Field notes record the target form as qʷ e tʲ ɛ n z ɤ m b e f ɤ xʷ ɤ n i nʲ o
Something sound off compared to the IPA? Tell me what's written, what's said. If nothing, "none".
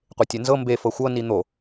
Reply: nʲ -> n̪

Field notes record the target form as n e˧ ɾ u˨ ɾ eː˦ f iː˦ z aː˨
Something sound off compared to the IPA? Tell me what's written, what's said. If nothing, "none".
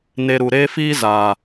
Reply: none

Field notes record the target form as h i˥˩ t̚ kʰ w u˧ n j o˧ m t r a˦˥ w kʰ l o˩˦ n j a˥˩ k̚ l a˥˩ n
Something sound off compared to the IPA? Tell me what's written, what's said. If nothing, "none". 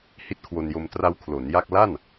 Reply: u˧ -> o˧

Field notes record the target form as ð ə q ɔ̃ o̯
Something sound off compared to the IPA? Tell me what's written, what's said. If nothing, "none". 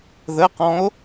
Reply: none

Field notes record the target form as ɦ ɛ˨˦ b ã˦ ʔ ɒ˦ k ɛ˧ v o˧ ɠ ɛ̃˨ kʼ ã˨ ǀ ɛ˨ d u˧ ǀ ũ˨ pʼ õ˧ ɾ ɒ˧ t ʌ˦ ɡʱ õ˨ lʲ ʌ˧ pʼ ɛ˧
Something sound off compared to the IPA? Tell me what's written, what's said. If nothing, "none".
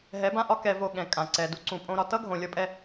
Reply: none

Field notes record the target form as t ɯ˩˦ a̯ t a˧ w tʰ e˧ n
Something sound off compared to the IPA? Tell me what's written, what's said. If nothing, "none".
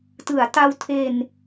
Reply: none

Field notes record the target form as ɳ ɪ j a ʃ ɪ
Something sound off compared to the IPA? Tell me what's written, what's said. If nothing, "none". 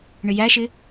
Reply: a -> æ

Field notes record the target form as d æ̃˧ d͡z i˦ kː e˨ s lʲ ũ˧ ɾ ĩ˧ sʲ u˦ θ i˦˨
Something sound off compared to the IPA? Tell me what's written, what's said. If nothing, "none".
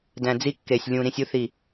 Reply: s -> sʲ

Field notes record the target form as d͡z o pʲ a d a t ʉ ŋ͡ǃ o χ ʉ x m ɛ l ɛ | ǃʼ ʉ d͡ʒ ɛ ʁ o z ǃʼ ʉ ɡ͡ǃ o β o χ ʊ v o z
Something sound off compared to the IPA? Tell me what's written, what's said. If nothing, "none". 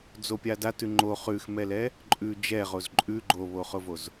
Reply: none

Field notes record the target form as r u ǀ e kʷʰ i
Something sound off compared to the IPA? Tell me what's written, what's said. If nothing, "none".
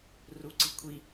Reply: e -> i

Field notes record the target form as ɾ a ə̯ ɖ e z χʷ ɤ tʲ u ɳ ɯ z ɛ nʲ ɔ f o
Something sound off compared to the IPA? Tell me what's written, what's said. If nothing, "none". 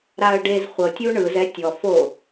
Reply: nʲ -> tʲ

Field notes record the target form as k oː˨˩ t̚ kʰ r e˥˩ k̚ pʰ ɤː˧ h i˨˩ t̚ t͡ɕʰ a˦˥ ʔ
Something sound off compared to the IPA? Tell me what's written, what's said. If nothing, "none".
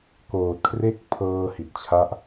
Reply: none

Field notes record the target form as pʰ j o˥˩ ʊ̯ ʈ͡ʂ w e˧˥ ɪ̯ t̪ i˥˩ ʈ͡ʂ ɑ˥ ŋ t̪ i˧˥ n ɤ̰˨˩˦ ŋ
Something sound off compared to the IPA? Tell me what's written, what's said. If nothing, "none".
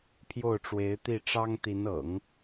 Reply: none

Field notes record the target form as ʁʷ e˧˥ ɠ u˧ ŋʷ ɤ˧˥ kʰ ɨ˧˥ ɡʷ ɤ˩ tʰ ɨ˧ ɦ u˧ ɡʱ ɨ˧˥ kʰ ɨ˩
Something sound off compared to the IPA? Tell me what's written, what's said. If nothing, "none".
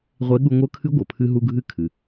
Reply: tʰ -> pʰ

